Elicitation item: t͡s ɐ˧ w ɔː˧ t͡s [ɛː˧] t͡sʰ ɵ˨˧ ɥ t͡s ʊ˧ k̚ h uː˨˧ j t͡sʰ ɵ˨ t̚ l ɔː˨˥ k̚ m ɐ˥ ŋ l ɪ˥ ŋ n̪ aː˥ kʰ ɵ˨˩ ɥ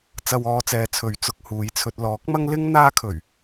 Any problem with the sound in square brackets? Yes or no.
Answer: yes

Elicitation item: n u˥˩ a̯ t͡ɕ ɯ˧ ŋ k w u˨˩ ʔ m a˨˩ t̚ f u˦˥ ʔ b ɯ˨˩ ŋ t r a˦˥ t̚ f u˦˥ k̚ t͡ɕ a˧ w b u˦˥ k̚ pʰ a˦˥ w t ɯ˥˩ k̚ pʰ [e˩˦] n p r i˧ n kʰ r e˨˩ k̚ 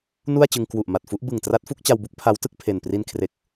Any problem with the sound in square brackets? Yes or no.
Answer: yes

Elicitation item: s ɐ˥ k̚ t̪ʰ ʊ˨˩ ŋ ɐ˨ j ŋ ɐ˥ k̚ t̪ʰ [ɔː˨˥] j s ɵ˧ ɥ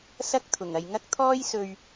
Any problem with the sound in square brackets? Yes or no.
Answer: yes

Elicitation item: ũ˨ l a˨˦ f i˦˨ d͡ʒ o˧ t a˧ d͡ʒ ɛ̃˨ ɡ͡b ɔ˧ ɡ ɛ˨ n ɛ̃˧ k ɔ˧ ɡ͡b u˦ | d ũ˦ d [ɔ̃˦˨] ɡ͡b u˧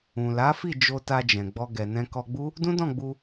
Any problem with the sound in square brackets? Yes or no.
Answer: no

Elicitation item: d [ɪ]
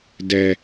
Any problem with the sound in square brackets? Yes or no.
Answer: yes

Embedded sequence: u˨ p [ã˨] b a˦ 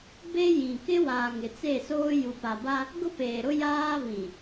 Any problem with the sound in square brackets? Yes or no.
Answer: yes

